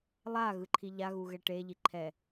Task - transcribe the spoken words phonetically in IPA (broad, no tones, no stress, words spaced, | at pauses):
lˠa ɣɯǃʰiʎa ɣuɣɛʈe ʎiǃʰɛ